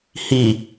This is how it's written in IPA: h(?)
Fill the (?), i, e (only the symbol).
i